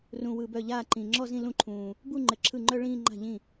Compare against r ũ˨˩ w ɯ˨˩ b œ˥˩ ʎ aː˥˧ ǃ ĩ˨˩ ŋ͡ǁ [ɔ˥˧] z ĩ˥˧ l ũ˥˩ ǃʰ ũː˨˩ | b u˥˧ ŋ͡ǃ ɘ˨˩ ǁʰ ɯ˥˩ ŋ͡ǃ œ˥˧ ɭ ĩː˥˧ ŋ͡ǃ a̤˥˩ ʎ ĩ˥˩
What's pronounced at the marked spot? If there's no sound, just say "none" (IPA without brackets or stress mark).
ɔ˥˧